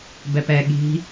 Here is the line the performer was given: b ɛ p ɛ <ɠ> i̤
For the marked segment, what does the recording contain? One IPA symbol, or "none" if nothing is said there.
ɠ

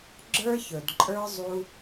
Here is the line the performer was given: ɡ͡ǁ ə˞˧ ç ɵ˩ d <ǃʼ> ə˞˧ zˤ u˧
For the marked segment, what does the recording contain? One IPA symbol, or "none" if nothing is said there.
ǃʼ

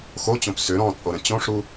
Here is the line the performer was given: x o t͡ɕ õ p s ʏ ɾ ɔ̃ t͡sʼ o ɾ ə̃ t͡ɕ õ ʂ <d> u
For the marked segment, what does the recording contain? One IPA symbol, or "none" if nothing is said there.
ɾ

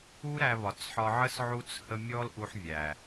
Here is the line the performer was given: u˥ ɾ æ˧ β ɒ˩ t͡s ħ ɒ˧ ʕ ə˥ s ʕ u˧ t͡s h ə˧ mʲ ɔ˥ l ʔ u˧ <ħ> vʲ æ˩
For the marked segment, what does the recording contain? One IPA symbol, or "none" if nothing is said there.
ħ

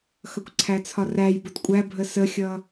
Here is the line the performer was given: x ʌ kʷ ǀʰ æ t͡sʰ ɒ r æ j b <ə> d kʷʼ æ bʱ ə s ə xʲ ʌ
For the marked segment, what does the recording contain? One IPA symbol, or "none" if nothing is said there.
ʊ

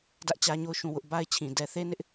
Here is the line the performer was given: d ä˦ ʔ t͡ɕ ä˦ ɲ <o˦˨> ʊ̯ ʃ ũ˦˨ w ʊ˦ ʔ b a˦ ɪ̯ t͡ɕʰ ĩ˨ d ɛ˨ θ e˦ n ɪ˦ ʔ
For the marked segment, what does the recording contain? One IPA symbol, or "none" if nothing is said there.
o˦˨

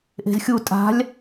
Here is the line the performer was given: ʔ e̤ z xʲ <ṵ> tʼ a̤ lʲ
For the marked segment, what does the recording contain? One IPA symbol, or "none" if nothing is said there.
u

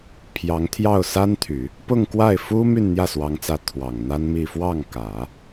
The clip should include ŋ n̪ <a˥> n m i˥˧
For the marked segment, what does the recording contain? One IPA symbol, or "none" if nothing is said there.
a˥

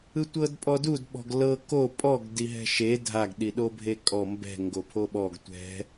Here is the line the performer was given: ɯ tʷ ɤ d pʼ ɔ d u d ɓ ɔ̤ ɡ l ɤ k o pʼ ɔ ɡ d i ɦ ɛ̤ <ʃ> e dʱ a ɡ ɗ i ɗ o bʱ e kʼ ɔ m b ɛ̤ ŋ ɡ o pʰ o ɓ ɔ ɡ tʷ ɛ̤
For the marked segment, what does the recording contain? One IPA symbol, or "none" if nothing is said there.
ʃ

